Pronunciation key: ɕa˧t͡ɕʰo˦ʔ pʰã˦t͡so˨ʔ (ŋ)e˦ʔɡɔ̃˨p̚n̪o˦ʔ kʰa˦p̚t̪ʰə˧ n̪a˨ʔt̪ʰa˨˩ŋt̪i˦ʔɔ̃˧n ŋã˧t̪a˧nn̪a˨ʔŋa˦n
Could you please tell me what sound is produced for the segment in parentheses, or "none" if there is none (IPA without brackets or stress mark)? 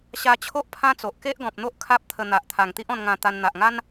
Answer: k